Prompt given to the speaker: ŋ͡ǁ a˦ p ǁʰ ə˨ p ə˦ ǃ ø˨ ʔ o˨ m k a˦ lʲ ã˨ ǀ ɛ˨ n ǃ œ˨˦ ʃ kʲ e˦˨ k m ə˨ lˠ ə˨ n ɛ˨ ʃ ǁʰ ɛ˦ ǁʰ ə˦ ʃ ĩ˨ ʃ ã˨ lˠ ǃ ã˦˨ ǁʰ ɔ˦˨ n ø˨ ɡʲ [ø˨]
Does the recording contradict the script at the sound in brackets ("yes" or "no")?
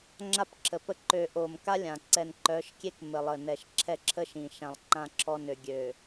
no